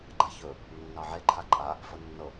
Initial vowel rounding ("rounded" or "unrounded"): unrounded